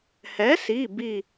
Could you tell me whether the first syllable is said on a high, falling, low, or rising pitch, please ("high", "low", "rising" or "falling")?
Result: rising